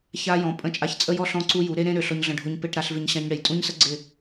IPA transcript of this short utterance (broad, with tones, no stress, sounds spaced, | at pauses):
ç a˧ j ɔ̃˨ pʼ ə̃˧ t͡ʃʼ a˧ ç t͡sʼ ə˦ j ɔ˦ ɬ ɔ̃˧ ǀ u˧ j u˨˦ ɾ e˦ ɾ ẽ˦ ɾ ø˨ ɬ ɔ˧ ɲ ɮ ə̃˧ ɖʱ o˧ ɲ p e˧ ʈ ɾ a˧ ɬ v ɪ˧ ɲ ɕ ã˧ ɲ ɽ e˨ j tʼ ũ˦ ɲ s ə˦ ɡ͡ǀ ɪ˦˨